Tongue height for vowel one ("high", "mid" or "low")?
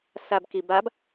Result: low